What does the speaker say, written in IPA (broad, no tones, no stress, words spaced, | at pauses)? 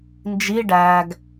nd͡ʒi ɖæɡ